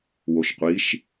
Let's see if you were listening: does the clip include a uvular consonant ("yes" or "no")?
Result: yes